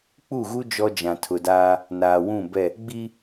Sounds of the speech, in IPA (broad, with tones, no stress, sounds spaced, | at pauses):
k͡p u˦˨ ɣ u˦ d͡ʒ ɔ˦ d͡ʒ ã˨ tʰ ʊ˨ d aː˦ | n aː˨ w ũ˦˨ b ɛ˦˨ | ɡ͡b i˦